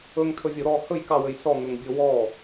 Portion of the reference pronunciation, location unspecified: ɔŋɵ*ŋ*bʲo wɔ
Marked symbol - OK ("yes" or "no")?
yes